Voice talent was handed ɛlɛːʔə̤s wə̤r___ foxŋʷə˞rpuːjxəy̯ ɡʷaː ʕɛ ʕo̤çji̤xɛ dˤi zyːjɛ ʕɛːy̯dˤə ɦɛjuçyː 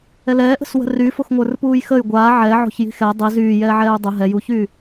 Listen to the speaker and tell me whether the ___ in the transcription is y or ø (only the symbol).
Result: y